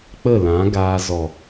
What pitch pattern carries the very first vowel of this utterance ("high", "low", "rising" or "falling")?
falling